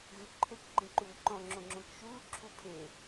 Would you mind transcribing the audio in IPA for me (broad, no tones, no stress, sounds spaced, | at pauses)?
ɣ ʉ ǃʰ e k ɡ͡ǃ ẽ ǃ uː ǃ ɔ̃ ŋ͡ǁ õ ŋ͡ǁ õ k ʃ uː ǁʰ u pʰ e